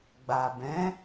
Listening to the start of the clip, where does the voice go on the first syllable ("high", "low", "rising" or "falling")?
low